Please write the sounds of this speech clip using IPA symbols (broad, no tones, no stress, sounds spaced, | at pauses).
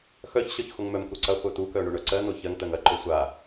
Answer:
x œ ç ɕ œ ç x o ŋ m œ m k u ǀ ɐ χʷ œ t̪ u k œ ɳ o ɳ œ ǀ ɜ n̪ o ç ɜ ŋ t̪ ɜ ŋ ɐ ǃ o sʷ a